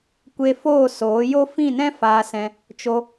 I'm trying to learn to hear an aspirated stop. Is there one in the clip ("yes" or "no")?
no